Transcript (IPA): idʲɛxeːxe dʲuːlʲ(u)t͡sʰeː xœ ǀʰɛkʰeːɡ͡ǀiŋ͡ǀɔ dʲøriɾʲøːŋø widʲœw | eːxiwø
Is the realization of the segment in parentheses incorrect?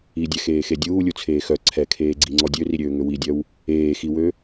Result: no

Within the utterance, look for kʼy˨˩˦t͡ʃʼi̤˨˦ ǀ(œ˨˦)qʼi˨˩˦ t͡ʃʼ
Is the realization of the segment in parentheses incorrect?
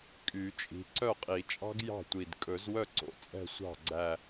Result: yes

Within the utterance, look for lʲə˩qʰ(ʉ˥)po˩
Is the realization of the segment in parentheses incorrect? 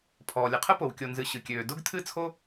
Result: yes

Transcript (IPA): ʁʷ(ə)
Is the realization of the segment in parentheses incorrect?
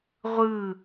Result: yes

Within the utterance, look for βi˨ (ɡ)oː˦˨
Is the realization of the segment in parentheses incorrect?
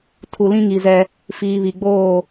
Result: yes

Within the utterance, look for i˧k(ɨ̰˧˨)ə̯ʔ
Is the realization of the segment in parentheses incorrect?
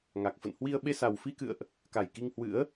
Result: no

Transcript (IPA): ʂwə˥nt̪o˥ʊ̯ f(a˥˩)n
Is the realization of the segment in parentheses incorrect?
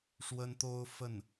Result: yes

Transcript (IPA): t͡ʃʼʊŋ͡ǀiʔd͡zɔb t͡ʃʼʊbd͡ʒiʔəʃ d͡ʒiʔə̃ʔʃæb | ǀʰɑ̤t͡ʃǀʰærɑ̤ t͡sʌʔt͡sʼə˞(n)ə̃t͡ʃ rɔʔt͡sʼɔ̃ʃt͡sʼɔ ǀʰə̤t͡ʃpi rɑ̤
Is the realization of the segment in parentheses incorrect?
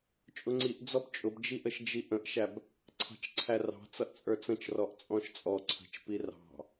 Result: yes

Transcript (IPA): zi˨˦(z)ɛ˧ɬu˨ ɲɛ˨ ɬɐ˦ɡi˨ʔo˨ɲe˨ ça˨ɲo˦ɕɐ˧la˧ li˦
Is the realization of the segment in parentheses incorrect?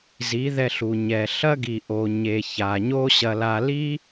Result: yes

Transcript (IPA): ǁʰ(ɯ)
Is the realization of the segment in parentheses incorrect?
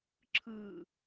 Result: yes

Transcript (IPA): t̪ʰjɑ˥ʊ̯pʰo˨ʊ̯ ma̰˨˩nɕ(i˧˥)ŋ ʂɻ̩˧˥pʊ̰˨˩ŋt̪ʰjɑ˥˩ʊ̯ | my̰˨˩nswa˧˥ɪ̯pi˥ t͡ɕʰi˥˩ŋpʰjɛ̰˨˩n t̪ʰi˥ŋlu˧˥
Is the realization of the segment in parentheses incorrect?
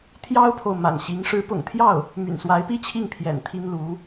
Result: no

